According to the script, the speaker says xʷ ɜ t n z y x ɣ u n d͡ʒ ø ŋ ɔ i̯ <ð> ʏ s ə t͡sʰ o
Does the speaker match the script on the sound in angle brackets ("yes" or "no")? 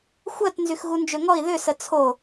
yes